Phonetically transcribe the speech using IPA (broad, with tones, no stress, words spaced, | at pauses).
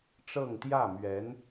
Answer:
ʈ͡ʂɤ˥˧ŋt̪jä˥˩ mɥɛ˧˥n